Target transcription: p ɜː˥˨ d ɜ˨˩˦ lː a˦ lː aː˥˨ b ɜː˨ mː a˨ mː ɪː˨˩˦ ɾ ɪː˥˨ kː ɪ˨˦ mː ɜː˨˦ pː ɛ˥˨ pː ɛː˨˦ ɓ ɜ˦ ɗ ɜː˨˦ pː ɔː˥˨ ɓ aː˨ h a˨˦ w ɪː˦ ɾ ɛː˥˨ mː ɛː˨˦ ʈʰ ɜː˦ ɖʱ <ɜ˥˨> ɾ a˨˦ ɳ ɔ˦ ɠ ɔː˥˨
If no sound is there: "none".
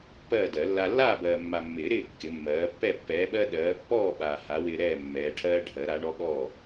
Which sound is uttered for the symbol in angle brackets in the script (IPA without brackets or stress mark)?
ɜ˨˩˦